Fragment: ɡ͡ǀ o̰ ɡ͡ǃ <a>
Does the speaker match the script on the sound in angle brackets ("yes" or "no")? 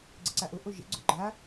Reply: yes